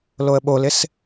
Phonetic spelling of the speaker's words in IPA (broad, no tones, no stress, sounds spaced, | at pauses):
l o ə̯ ɓ o l ɪ s